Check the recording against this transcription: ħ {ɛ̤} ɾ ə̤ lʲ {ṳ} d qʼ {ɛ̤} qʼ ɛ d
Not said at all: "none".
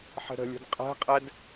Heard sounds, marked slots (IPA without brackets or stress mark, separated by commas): ə̤, ṳ, ɛ̤